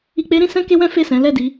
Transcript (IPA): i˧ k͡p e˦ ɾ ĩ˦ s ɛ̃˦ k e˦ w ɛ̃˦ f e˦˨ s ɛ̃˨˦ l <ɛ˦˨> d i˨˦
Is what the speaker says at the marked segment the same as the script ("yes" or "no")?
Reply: yes